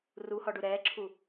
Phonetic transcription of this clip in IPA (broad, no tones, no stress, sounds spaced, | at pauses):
r u h ɔ ɖ u ɾ ɛː ǁʰ u